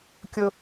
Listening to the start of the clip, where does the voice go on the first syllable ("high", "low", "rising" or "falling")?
high